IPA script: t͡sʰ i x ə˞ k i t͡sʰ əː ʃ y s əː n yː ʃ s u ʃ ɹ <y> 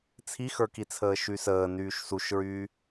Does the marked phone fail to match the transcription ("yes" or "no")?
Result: yes